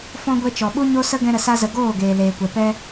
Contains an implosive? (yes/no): yes